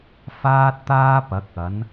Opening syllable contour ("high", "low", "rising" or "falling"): high